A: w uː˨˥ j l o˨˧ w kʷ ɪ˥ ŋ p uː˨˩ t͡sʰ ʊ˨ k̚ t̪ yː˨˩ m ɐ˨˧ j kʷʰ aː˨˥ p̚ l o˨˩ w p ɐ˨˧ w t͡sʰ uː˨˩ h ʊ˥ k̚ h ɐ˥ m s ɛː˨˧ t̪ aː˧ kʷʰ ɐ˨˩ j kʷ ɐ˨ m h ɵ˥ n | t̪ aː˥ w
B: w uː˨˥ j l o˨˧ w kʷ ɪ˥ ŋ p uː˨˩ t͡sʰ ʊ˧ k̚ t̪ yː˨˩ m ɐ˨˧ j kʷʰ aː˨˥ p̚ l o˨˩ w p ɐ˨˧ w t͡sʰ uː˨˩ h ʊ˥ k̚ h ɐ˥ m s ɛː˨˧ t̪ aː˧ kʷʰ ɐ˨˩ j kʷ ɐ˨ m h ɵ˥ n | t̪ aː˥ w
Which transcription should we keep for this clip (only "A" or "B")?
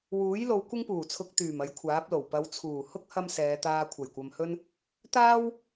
B